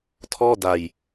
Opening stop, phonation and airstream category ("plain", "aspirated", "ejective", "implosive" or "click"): aspirated